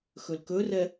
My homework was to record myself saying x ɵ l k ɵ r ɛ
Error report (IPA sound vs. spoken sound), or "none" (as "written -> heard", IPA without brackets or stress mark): none